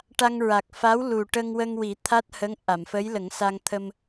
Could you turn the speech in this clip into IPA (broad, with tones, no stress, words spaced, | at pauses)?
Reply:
ʈa˧ŋɹa˨˩k̚ fa˧˥wlu˨˩ ʈə˧ŋ wə˧ŋwi˨˩˦ t̪ʰa˦˥t̚hə˧˥ŋ ʔa˨˩˨mfə˧˥jlə˨˩˦ŋsa˧ŋ t̪ʰə˧m